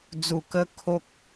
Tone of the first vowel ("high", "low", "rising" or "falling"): low